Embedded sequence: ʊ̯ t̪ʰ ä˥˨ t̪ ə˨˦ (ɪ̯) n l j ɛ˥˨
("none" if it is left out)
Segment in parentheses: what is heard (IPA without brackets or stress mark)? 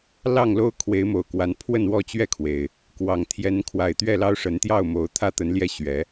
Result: none